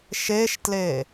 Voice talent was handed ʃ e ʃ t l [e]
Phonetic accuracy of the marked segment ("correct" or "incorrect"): correct